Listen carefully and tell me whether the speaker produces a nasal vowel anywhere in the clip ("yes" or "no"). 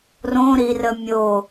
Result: yes